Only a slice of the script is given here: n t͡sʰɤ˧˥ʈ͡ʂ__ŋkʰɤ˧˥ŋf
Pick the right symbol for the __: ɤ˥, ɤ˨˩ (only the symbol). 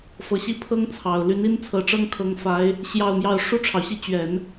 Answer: ɤ˥